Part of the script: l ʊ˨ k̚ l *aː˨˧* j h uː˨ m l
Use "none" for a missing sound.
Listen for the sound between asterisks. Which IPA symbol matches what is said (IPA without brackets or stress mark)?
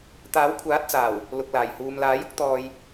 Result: aː˨˩